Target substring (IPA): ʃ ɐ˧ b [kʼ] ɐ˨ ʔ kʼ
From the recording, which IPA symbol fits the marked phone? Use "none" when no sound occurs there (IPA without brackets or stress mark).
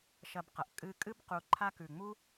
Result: q